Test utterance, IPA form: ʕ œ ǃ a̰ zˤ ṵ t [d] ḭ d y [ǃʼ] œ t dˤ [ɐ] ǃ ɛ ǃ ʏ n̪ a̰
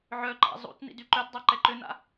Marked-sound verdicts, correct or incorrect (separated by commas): incorrect, incorrect, incorrect